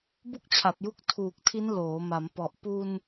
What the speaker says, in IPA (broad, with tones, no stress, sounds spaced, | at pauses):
b u˥˩ k̚ t͡ɕʰ a˨˩ p̚ j u˦˥ k̚ tʰ uː˨˩ k̚ tʰ i˦˥ n l oː˩˦ m a˩˦ m p ɔ˨˩ ʔ p u˧ n